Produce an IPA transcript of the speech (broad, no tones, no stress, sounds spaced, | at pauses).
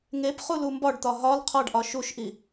ŋ e p χ u l u m b ɒ ɖ t̪ ɒ ɦ ɒ l qʰ ɒ ɖ ʔ ɒ ʃ u ʃ ʔ i